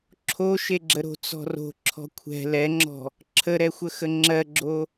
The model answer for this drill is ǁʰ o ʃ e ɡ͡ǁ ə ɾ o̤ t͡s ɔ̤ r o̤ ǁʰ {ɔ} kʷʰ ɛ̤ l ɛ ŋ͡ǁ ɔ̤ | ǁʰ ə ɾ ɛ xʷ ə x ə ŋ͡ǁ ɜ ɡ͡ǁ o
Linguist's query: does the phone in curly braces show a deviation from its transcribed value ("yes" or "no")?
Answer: yes